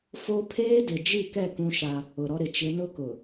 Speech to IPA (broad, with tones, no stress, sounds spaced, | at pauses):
f o˦ pʰ eː˦ d ɪ˨ d͡ʒ i˦˨ k ɛ˦˨ k ũ˦ ʃ a˦ | ʊ˨ ɾ ɔ˦ ɾ ɪ˨ t͡ʃ ɪ˨˦ n ʊ˦ k ʊ˨